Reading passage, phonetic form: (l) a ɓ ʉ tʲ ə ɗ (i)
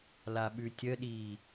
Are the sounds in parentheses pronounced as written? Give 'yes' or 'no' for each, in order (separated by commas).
yes, no